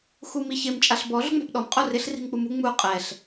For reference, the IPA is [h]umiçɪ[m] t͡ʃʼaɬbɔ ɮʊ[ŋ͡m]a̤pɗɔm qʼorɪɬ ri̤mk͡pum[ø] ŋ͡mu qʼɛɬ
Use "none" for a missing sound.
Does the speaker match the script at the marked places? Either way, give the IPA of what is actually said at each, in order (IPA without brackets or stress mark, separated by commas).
x, m, ŋ͡m, u